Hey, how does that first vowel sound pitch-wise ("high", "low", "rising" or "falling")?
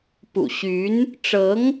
low